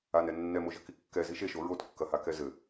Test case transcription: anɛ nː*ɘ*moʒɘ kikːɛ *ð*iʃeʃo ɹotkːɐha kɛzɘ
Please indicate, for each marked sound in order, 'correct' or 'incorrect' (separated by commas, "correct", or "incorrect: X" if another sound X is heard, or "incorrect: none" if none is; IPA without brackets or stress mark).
incorrect: ɛ, incorrect: z